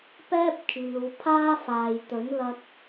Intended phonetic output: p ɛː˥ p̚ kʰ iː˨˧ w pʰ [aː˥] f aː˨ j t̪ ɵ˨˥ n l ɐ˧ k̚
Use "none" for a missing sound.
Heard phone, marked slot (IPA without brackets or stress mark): aː˥